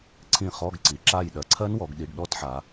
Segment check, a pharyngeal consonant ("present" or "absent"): present